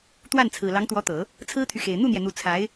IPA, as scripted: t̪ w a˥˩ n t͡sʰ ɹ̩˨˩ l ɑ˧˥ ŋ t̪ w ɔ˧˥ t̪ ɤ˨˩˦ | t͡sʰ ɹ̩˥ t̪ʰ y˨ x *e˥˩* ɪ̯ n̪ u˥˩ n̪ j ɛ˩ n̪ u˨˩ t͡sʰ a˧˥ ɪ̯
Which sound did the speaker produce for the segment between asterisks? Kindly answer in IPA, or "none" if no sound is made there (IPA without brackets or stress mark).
e˨˩